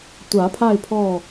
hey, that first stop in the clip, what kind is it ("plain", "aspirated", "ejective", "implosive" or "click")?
plain